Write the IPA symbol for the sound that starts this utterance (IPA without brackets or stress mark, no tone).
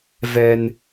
v